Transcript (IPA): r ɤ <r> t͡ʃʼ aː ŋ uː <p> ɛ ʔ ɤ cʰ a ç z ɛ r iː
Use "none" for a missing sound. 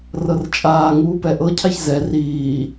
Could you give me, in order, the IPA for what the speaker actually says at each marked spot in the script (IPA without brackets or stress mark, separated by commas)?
r, p